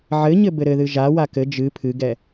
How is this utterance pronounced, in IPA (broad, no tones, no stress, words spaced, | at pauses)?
ʕɘɲɘ bɘɾɘðɨ ʒawa kɘ d͡ʒɨ pʰɨɡɛ